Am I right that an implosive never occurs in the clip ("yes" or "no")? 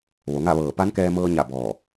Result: yes